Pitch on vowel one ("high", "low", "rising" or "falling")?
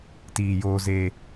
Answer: low